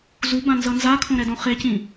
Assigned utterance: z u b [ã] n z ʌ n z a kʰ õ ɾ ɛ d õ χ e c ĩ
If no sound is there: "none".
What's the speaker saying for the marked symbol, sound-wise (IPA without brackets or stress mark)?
ã